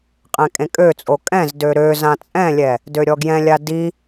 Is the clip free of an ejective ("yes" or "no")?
no